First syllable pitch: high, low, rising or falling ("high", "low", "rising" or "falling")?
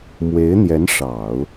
rising